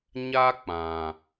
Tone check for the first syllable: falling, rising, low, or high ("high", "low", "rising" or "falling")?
high